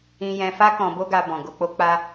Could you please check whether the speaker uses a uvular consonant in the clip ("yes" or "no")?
no